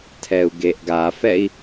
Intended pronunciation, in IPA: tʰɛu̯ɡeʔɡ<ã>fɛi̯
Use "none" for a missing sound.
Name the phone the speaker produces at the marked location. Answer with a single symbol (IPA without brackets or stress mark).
a